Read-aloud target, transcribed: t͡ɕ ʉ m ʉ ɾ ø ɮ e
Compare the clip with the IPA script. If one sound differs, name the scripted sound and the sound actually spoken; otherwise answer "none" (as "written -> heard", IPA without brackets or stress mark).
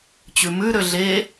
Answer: none